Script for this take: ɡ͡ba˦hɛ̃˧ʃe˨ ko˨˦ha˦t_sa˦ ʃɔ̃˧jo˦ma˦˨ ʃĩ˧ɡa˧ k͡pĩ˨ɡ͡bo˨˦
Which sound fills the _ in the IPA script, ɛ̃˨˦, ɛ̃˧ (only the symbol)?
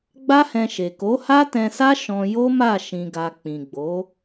ɛ̃˧